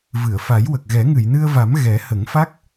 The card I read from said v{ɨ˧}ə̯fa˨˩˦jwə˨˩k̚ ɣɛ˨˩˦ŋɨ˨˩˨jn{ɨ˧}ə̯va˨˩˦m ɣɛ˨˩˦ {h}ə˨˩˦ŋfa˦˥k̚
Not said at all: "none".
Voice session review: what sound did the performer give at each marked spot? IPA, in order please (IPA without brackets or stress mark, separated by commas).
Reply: ɨ˨˩˨, ɨ˧, h